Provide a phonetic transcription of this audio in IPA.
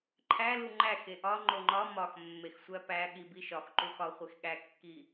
ǃʰælu ŋ͡ǃæxe ʔɒ ŋ͡ǃoŋ͡ǃɒ mɒx mːexsʷæpæ ɠibiʃɒx ǃuxɒχʷex ɠækːi

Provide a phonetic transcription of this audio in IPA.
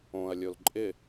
õɐ̯lʲol ǃʼɪ

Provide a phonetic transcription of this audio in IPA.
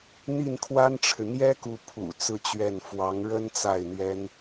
n̪i˥˩nkʰwa˥nʈ͡ʂʰɻ̩˨ n̪jɛ˥ku˧˥pʰṵ˨˩ t͡sɹ̩˥˧t͡ɕɥɛ˥˩n fwɑ˧˥ŋɻə˥n t͡sa˥˩ɪ̯n̪ɥɛ˥n

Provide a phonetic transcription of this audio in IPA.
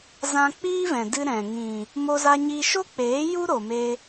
zã˧k͡piː˦vɛ̃˨ dɨ˧ ɾɛ̃˨ ŋĩ˨ | mo˧za˧ɲi˧ ʃo˦k͡peː˨˦ ju˦ɾo˨me˧

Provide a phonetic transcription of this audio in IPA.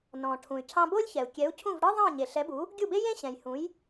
nɔ̃˩ ʈʰũ˩y̯ cʰɑ̃˧bo˥lʲçɛ˩u̯ kʲɛ˩˥u̯cʰũ˥˩vɽɯ˥ ðˤɑ̃˥˩ɲe˩ɬɛ˩˥bu˩˥ | ɡʲu˥˩be˥ jẽ˥ɕɛ̃˩jhũ˩˥j

